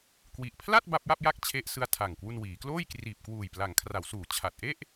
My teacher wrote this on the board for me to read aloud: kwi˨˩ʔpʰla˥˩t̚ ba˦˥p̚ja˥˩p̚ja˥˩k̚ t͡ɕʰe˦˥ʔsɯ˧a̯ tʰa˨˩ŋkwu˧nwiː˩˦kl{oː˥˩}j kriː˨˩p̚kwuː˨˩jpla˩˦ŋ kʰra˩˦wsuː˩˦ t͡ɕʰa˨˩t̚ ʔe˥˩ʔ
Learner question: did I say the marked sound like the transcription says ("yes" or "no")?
yes